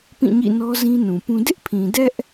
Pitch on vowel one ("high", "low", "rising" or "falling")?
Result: falling